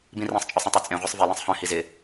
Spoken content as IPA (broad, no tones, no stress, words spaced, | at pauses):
bĩrĩsˤt͡ʃʼœsˤ ɛ̃tˤœt͡sʼẽʁʷɛsˤ velɛ̃sˤ hœ̃hi zɪ